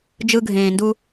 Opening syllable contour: high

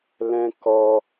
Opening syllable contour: high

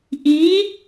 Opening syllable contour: rising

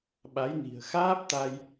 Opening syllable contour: rising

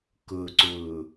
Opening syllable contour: low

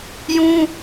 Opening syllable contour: high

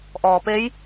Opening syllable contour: low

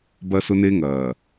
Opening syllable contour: high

